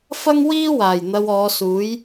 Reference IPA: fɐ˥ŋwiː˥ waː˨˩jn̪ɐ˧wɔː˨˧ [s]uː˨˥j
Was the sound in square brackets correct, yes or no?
yes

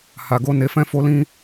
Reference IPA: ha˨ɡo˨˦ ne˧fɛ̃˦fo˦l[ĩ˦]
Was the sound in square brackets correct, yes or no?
yes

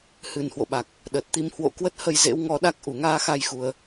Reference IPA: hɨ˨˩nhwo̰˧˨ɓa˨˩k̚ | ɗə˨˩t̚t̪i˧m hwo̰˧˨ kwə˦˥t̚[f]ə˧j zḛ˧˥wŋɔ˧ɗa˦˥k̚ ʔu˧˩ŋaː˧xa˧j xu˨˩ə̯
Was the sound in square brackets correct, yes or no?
no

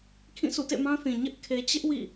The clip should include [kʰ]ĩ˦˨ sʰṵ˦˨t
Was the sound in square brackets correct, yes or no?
yes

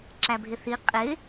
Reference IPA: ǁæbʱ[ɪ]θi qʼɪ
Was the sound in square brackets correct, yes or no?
yes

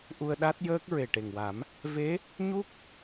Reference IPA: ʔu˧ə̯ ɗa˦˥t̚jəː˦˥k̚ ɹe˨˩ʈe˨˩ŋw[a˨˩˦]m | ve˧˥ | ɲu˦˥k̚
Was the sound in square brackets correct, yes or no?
yes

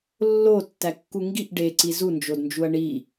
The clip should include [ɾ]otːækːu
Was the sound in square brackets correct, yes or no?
no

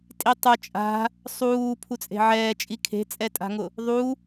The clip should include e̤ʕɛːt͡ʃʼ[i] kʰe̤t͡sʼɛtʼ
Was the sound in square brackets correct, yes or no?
yes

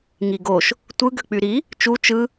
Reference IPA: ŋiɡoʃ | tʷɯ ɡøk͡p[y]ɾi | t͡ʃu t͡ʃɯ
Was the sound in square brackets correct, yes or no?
yes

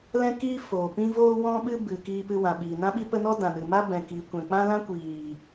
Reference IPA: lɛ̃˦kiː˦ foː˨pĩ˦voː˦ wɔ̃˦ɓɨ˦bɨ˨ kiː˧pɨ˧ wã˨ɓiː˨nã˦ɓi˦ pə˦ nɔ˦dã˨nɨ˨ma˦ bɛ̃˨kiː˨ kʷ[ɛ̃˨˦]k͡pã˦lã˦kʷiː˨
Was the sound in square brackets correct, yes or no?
no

